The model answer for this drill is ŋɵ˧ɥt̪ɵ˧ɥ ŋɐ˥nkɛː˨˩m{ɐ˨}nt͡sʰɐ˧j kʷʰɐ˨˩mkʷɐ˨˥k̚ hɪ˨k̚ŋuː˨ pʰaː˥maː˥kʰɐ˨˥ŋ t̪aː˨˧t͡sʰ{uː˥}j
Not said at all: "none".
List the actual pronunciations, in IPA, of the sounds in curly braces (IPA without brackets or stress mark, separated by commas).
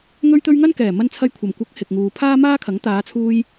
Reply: ɐ˧, uː˧